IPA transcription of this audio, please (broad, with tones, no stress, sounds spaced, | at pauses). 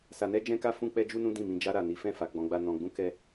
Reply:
s a˧ n ɛ˦ d͡ʒ ɛ̃˦ k a˦ f ũ˦ k͡p ɛ˦ d͡ʒ u˦ n ũ˦ d ĩ˦˨ m ĩ˧ d͡ʒ a˧ ɾ a˨ n i˨˦ f ɛ̃˦˨ f a˨˦ ɡ͡b ɔ̃˧ ɡ͡b a˦ n ɔ̃˧ ɡ͡b ũ˦ k ɛ˦